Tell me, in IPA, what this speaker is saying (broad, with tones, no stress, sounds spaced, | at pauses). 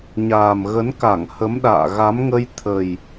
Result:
ɲ aː˨˩ m ɣ ə˨˦ n k a˧˩ ŋ h ə˨˦ m ɗ a̰ː˧˨ ɣ a˨˦ m ŋ ə˧ j t̪ʰ ə˨˩ j